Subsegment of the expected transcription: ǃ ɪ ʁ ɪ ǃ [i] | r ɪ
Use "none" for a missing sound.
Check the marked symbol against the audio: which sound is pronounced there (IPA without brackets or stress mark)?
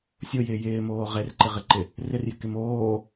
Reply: ɪ